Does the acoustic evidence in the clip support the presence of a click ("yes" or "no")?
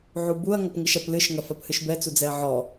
no